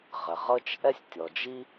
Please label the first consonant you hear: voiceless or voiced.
voiced